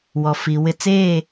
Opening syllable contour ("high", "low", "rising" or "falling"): low